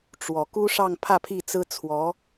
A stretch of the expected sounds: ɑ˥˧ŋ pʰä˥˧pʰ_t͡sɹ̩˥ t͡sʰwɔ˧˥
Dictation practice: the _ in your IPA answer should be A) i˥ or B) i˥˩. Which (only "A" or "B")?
B